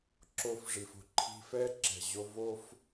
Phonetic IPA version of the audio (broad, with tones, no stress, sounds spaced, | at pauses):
ǁ o˧ f ʐ i˩ f o̤˥ ǃʰ i̤˧ f ɛ˥ ǁ ɛ̤˩ ʑ o˧ v o˥ f